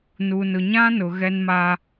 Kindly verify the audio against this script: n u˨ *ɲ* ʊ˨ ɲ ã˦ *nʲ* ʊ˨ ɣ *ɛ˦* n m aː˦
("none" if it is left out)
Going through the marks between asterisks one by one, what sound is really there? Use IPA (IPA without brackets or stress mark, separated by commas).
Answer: n, n, ɛ˦